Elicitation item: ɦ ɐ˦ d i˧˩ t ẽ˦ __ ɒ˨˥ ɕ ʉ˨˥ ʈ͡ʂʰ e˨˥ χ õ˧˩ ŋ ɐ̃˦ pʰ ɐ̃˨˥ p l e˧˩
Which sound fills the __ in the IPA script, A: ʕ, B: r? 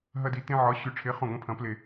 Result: A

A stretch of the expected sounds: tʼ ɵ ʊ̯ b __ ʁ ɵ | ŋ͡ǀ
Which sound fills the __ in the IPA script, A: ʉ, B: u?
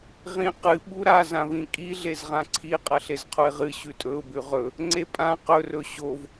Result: A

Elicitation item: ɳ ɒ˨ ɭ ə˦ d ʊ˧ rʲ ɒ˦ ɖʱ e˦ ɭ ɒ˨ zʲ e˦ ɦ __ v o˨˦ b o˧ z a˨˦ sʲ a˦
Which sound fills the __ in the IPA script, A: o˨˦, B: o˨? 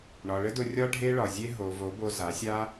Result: B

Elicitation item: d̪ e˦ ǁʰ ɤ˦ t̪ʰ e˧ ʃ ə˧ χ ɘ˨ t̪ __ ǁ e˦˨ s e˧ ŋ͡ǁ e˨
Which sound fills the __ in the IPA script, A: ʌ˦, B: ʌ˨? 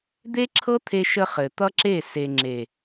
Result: A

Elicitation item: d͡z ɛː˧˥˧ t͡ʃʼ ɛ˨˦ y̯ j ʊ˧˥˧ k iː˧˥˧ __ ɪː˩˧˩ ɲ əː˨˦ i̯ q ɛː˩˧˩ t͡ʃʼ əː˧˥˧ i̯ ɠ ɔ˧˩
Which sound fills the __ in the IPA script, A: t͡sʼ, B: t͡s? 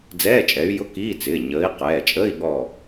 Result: B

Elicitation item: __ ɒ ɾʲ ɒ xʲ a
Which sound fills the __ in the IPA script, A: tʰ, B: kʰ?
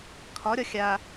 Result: B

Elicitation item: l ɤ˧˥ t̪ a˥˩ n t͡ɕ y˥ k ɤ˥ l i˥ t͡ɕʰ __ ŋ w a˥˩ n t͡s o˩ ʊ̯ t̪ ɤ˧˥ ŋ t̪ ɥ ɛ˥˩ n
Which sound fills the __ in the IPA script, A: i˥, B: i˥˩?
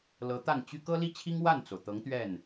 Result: A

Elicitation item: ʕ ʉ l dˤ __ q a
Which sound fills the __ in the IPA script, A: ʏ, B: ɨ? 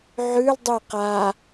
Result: B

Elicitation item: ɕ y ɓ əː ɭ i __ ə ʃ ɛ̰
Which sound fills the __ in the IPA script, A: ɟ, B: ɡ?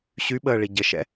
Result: A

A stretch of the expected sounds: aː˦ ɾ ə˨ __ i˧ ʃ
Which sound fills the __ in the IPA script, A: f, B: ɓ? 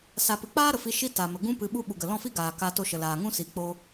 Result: A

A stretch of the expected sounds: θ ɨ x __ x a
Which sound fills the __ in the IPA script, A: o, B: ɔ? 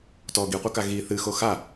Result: A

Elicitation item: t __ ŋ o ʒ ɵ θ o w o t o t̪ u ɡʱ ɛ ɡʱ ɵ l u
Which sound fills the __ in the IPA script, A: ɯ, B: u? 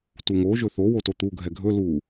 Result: B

